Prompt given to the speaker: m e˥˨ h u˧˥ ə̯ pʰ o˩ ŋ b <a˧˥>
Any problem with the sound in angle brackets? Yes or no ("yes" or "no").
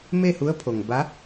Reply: no